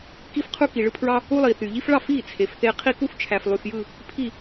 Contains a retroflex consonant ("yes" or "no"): yes